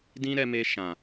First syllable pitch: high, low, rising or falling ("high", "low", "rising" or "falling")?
high